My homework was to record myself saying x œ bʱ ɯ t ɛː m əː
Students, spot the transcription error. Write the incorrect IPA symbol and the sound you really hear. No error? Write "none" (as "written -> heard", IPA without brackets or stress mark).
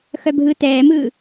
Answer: əː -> ɯː